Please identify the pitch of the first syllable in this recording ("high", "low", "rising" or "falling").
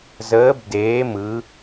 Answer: rising